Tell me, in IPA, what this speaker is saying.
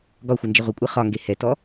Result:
ɡɒxʷənd͡ʒɪ ʁʷɪkʷʼɨ χɒŋɡe hɛtɔ

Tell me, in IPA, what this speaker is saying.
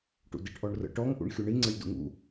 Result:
ʈṵdiʈʔɔɳrə̰ ʈɔŋ ʔṵɳxʲuɳi ŋ͡ǀəlʲdṵŋṵ

